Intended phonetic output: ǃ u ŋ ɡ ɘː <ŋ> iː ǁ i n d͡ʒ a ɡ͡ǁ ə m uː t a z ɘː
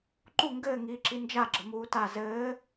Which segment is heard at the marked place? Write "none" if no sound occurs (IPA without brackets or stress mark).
ŋ